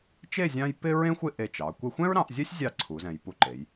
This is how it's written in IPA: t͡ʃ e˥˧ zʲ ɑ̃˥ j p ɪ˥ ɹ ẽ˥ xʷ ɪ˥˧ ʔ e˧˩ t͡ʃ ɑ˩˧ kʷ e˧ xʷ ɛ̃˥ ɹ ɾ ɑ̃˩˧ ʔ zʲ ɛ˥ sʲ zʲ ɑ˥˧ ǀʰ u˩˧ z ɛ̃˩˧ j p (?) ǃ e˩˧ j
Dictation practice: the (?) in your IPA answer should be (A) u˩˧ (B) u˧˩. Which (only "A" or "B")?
B